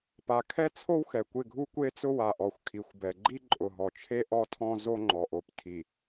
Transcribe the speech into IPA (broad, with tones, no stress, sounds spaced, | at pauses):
p a˨ kʰ ɛ˦ t͡sʰ o˦ w x ɛ˨ kʷ ɪ˦˨ ɡʱ u˦ kʷ e˦ t͡s ʊ˦ w a˨ ʔ ɔ˨ xʷ kʰ i˨ xʷ b ɛ˨ ɡ͡ǃ i˦ ǃʼ ʊ˨ ɦ ɔ˨ t͡ʃʰ e˦ ʔ ɔ˦ tʰ ɔ̃˦ z o˦ ŋ͡ǃ ɔ˨ ʔ o˨ p tʰ i˨